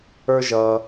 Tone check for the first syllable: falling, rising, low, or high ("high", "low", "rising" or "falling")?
high